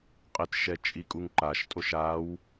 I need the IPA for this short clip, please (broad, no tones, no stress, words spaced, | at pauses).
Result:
qʼɪtʃɛ t͡ʃʼikʼuŋǃaʃtʼoʃ aw